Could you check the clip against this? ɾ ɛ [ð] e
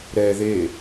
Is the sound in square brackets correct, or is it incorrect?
correct